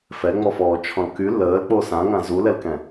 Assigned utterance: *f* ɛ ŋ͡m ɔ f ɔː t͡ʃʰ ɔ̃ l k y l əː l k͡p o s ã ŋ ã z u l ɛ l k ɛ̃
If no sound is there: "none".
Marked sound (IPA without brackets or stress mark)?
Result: f